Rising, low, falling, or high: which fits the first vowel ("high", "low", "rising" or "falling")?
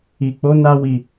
low